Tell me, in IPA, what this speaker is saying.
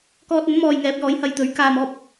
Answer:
k ɔː˧ t̚ ɐ˨˥ n m ɔː˨ j ŋ ɛː˨˥ p̚ j ɔː˨˥ j h ɐ˧ j t̪ ɵ˨˥ ɥ k aː˨ m ɔː˧ p̚

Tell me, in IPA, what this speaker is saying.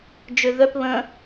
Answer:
d͡ʒ ø ð œ p β ə̃

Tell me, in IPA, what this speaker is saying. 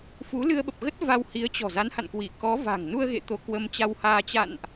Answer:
f u˨˦ l ɨ˧ ə̯ ɓ ə˨˩ p̚ ɣ ə˦˥ t̚ v a˧ w h i˨˦ ə̯ t͡ɕ ɔ̤˨˩ z a˨˦ n h a̰˧˨ n k w i˧˩ k ɔ˨˦ v a̤˨˩ ŋ n u˧ ə̯ ɣ ḛ˧˨ t̪ o˧ k w ə˧ m t͡ɕ a˧ w h aː˧ t͡ɕ a̰˧˨ n ʔ

